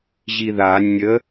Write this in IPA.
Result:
ʑ i ð a nʲ ə

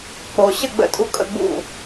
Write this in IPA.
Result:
k͡p o˨ ɕ ə˦˨ ɡ͡b ə̰˧ tʼ u˧ kʼ ə̰˦˨ ɡ͡b ṵ˦˨

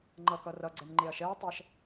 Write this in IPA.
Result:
ŋ͡ǃ ʌ k ʌ r ʌ ɡ͡ǀ ɛ n ŋ͡ǃ e ɐ̯ ʃ ɛ ɐ̯ tˤ ɛ ʃ

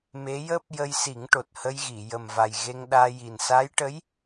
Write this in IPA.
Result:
m e˧˥ j əː˦˥ p̚ j ə˧ j s i˨˩˦ ŋ ʈ o˨˩ t̚ h ə˧ j ɣ i˨˩˨ j ə˨˩ m v a˨˩ j ɣ e˧ ŋ ɗ aː˧ j i˨˩ n s a˧˥ j ʈ ə˧˥ j

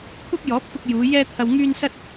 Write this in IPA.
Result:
kʷʰ ɐ˥ p̚ j ɔː˨˥ p̚ f ʊ˧ k̚ j uː˨˧ j ɛː˥ t̪ʰ ɐ˧ w ŋ yː˥ n s ɐ˥ t̚

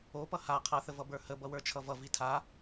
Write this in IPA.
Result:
o p ʌ h a qʰ ʌ θ ə v ʌ b ə˞ h ə b ʌ w ə˞ t͡ʃʰ ʌ v ʌ v i tʰ a

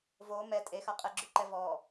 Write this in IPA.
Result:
v o m ɛ tʼ e x a qʼ ɛ ɡ͡ǁ ʉ ǃ ɛ v ɔ

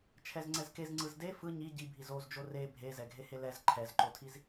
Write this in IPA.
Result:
t͡ʃʰ ɛ z ŋ͡ǀ ɛ z k e z ŋ͡ǀ ɯ z d e f ɯ ɲ i ɟ i bʱ i z o z d͡ʒ o r e bʱ e z ɛ ɡʱ e h e l ɛ z ǃʰ ɛ z ǃ o tʰ i z

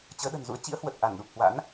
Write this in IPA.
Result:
t͡ɕ əː˨˦ ɗ ə̤˨˩ n z ṵ˧˥ ə̯ t͡ɕ ḭ˧˥ ə̯ h w ə˨˩ t̚ ʔ a˧˩ n ɗ u˨˩ p̚ h w a̰˧˥ n

